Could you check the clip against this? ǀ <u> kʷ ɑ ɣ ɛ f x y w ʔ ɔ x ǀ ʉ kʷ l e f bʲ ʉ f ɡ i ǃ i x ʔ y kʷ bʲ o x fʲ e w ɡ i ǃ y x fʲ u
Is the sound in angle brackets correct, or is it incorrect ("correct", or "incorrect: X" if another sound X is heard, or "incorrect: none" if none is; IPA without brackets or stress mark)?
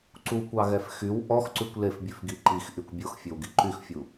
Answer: correct